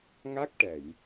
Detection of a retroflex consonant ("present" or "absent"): present